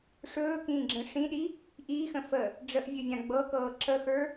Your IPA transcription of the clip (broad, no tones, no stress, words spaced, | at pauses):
ʂɵːkĩːɡ͡ǁə̃ ʂĩɗi | ʔiːxə̃ fə | ɖ͡ʐəʔvʲɵvʲã ɡ͡bɤkɤː ǁəxə˞